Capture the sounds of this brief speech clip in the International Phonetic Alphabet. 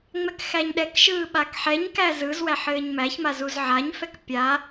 ŋ͡mɛkxæɲɗɛkʃɯː ɓakħɛɲkæ zɯz wæħɘːɲmæçma zuzʕaɲfɛk pʲa

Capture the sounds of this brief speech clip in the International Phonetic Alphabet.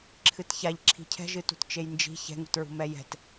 ǁʰɨtçaʎǁʰi̤ cʰɛ̤ʒɨ tṳtt͡ʃejnd͡ʒi̤ çɛ̤ŋṳtɹṳ mɛjɛ̤t

